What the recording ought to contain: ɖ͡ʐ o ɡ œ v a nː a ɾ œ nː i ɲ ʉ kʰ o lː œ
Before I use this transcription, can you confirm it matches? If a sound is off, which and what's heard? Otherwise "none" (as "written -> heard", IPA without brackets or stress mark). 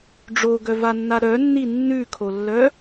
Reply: ɲ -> nː